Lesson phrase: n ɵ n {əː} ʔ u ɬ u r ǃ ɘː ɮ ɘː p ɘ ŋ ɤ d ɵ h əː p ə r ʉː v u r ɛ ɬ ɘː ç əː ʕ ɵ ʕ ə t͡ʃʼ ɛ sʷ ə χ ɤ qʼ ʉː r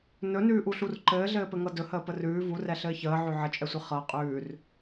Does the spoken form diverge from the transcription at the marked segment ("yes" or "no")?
yes